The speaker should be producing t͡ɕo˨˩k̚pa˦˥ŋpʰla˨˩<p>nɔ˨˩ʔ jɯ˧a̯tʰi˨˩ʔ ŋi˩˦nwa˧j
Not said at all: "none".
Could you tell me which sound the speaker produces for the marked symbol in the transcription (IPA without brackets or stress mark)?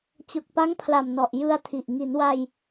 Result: m